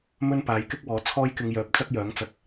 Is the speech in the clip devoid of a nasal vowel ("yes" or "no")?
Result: yes